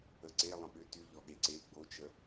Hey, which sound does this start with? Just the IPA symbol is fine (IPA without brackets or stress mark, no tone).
ə